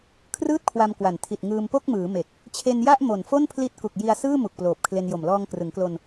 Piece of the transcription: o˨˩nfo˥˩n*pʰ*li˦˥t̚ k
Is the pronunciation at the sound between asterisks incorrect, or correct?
correct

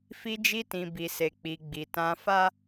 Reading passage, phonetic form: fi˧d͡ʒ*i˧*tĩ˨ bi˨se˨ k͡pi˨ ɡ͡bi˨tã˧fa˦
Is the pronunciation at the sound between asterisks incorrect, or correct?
correct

